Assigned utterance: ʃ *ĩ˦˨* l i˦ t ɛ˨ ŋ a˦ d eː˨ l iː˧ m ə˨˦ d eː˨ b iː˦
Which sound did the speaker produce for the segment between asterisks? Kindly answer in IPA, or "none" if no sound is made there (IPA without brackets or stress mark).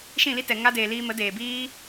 ĩ˦˨